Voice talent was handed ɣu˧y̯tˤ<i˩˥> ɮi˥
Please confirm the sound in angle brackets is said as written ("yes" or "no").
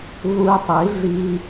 yes